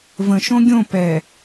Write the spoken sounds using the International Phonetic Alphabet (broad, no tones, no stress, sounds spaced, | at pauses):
v ə̃ ʃ õ ɡʲ õ p ɛ